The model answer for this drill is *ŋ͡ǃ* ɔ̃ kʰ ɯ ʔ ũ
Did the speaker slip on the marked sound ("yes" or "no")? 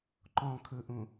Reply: yes